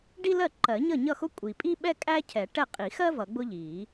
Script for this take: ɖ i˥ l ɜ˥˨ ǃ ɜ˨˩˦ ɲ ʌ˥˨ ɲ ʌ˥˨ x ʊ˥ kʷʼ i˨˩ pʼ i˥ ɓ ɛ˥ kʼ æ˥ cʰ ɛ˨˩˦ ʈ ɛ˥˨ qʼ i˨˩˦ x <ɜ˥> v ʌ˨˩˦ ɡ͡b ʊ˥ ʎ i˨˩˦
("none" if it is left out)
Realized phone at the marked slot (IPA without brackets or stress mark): ɜ˥